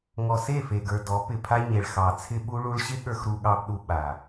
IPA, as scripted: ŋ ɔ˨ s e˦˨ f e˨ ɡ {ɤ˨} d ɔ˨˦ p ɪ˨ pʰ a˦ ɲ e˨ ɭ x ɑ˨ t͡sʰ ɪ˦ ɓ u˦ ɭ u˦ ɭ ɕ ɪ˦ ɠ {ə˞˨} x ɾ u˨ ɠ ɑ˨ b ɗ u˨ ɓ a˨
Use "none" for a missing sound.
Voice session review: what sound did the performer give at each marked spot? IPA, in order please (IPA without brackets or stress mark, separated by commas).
ə˞˨, ə˞˨